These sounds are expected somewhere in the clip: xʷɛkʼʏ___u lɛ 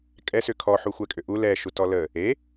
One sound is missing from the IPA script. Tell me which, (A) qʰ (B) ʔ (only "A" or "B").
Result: B